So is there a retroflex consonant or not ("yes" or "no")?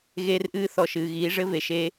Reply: yes